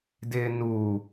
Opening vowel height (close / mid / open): close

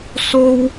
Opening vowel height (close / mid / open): mid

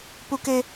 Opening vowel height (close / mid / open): close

